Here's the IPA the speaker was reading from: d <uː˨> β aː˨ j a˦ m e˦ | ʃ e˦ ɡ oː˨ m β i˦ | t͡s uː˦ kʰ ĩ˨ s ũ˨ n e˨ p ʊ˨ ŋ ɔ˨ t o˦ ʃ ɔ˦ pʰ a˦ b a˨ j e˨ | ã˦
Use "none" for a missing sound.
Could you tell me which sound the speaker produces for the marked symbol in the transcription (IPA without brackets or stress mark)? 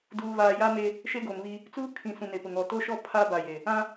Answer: uː˨